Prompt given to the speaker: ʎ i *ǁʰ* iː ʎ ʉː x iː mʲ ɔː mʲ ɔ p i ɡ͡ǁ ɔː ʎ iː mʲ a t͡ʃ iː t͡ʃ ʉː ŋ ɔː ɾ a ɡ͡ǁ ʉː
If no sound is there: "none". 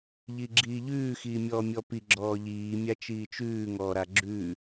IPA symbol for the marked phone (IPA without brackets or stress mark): ɡ͡ǁ